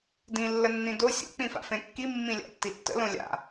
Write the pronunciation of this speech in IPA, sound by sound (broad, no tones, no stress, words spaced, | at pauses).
dĩ lːənːĩdo sʲo̰ k͡pĩfa̰fẽkːi mːĩlʲa̰tːitːə̰ lõlʲa̰